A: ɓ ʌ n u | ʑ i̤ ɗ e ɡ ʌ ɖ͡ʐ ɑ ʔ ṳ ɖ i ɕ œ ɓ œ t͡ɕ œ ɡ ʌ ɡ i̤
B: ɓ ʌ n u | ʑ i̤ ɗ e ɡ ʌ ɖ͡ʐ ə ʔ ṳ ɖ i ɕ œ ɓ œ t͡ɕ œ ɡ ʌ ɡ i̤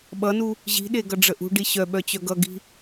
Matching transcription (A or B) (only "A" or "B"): B